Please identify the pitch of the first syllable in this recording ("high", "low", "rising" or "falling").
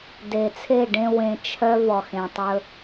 low